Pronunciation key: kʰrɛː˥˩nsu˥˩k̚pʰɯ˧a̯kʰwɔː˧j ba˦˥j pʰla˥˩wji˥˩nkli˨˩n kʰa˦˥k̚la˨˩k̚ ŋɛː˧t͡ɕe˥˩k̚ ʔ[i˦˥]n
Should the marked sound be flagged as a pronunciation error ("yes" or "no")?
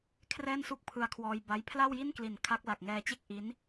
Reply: no